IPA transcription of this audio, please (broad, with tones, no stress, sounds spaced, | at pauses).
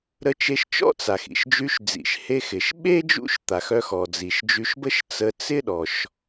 ɾ ə˧ t͡ʃ e˧ ʃ t͡ʃ ɔ̰˥ t͡s a˩ x ḭ˩ ʃ d͡ʒ y˧ ʃ d͡z ḭ˩ ʃ h e˧ x ɪ˩ ʃ ɓ e˥ d͡ʒ ṵ˥ ʃ t̪ a˩ x œ˧ x ɔ˩ d͡z i˩ ʃ d͡ʒ y˧ ʃ b ə˥ ʃ t͡s ə˧ t͡s ɪ˥ ɗ ɔ˩ ʃ